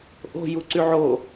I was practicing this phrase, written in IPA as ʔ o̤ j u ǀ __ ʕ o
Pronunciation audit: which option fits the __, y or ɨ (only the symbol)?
y